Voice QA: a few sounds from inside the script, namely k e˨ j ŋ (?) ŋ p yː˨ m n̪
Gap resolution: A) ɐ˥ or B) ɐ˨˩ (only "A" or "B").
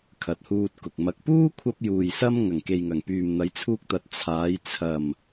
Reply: B